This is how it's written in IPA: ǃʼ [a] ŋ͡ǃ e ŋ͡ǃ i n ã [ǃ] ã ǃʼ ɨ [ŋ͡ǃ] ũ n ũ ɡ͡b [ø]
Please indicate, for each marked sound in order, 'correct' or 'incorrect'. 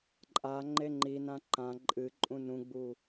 correct, correct, incorrect: ǃʼ, incorrect: u

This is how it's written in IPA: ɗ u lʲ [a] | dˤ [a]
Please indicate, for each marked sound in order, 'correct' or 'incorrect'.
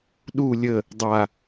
incorrect: ə, correct

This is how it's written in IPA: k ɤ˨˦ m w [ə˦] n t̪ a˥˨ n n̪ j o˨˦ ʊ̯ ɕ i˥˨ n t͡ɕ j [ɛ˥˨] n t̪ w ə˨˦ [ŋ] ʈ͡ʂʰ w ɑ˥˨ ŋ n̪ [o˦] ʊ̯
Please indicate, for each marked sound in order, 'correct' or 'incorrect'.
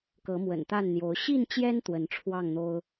incorrect: ə̰˨˩, incorrect: ɛ˦, incorrect: n, correct

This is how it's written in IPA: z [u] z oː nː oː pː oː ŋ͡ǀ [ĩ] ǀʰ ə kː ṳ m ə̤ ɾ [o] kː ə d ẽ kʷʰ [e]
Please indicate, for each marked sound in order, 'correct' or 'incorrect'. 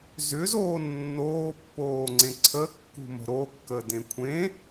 incorrect: ʏ, incorrect: ẽ, correct, incorrect: ẽ

